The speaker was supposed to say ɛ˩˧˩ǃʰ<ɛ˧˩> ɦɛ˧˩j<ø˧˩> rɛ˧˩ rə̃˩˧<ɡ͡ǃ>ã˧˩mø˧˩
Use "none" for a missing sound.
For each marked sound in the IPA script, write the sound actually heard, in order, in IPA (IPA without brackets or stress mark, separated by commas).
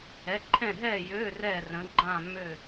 ɛ̃˧˩, ø˩˧˩, ɡ͡ǃ